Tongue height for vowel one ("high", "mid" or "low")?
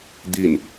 high